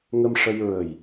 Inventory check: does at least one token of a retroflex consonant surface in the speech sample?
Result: yes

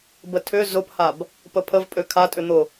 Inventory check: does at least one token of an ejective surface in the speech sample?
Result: yes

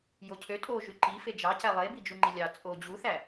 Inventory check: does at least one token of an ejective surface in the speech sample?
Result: yes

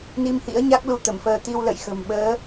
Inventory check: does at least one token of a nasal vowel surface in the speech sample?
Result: no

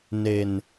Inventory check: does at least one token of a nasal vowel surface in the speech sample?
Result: no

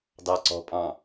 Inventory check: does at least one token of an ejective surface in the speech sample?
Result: yes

